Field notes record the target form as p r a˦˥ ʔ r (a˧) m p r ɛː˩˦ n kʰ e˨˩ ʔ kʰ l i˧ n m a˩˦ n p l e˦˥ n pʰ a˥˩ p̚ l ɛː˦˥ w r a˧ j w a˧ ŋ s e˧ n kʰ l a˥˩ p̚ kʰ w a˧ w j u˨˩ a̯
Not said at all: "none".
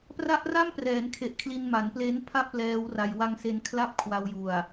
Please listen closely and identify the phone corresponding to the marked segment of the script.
a˥˩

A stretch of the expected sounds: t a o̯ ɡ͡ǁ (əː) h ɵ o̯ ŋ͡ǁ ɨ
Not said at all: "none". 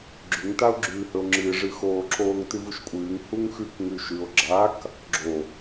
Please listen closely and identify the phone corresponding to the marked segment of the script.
ʉː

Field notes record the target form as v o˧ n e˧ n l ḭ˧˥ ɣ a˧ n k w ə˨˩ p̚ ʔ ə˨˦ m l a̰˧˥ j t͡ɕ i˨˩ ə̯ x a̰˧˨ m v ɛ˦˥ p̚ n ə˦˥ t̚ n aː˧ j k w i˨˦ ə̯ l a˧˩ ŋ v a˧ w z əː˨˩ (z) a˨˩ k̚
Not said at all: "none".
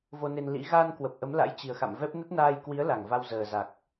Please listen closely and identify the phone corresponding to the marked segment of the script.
z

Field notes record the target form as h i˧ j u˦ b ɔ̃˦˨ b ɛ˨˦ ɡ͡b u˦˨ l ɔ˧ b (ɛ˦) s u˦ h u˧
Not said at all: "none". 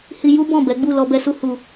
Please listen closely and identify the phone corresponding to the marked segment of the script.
ɛ˧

